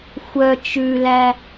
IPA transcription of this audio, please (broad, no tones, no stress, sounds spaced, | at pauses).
xʷ œ t͡ʃ ʉ l æ